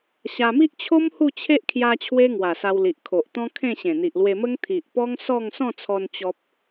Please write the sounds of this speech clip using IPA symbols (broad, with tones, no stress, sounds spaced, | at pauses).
ɕ a˧ m i˦ ʔ t͡ɕʰ o˦ m h u˥˧ t͡ɕʰ e˦ ʔ kʰ j a˧ t͡ɕʰ w e˦ ŋ w a˨˩ s a˧ w l i˨ ʔ kʰ o˨ ʔ t̪ ɔ̃˦ kʰ ẽ˥˧ ɕ ẽ˨˩ n̪ i˨ ʔ l w e˧ m ə˦ ŋ t̪ʰ i˨ ʔ p ɔ˦ ŋ s ɔ˥˧ ŋ s ɔ̃˥˧ t͡sʰ ɔ˧ n t͡ɕ ɔ˦ p̚